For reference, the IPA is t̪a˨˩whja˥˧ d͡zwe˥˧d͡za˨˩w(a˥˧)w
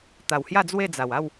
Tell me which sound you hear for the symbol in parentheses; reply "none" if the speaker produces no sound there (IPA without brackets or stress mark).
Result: a˥˧